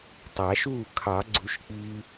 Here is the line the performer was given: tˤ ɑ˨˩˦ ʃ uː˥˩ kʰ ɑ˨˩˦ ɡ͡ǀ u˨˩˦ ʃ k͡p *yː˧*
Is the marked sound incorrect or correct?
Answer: incorrect